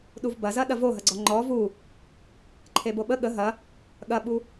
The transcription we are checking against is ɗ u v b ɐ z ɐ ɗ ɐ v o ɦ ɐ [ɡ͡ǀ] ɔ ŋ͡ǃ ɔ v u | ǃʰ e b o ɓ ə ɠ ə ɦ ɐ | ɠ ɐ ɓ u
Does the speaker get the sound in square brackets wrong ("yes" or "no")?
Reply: no